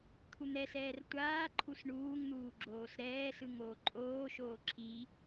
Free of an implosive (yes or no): yes